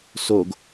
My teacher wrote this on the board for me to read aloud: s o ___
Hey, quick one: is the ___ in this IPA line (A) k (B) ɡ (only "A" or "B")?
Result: B